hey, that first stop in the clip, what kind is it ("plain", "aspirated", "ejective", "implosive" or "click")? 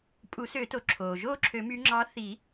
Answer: ejective